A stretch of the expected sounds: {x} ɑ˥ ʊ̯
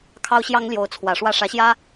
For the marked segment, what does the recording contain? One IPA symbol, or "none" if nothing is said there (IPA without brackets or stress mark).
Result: kʰ